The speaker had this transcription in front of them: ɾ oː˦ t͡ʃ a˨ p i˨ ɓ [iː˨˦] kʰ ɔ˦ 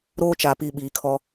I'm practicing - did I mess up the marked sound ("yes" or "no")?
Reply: no